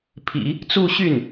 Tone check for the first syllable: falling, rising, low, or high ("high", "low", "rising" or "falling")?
low